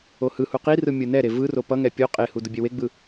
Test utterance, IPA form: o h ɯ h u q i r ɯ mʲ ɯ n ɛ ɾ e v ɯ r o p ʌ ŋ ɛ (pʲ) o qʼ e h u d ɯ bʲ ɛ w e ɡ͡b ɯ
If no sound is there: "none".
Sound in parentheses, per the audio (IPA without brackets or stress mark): pʲ